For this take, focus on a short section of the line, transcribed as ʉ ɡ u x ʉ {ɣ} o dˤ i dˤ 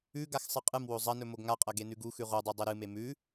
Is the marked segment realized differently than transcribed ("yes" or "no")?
yes